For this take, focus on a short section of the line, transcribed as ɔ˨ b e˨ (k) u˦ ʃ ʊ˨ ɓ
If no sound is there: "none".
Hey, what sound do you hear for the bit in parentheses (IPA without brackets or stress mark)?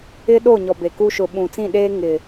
k